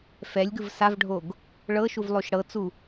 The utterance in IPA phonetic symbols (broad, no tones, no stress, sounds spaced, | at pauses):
f ɛ lʲ ɡ ɯ v s a v ɖʱ o ɡ | ɭ ɤ ʃ u v lˠ o ʃ ɽ ɤ t͡s u